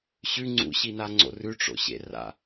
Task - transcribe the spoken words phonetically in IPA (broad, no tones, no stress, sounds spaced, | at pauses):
ɕ ʉ ŋ͡ǀ ṵ ɕ i n a ŋ͡ǀ o̰ r ʉ ʈ͡ʂ o̰ ɕ ḛ r a̰